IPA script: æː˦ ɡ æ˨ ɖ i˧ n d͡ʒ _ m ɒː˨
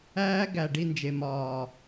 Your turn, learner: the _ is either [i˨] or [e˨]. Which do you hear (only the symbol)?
e˨